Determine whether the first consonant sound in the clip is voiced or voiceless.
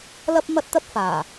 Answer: voiced